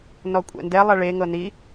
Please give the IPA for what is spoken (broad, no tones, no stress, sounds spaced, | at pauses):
n ɔ kʷʼ ɛ̰ n d ɛ lˠ a ɭ e ŋ ɤ n i